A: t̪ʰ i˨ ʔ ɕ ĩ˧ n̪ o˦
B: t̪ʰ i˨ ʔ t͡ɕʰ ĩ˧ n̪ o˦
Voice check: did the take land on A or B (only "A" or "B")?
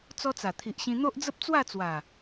A